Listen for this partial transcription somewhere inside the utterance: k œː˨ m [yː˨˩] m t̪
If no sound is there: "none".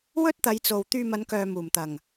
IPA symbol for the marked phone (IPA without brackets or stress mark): uː˨˩